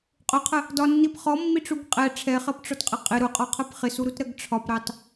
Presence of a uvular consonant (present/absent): present